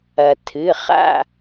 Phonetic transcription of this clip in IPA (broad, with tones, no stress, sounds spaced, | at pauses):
ɐ˩ t̪ʰ ɨ˩˧˩ χ a̰˦˨